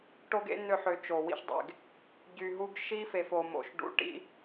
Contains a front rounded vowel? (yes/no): yes